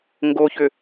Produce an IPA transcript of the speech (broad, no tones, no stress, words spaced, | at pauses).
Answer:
ŋɡoçʏ